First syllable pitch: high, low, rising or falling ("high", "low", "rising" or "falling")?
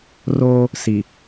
high